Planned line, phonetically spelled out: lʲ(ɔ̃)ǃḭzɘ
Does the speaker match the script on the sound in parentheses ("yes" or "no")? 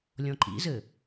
yes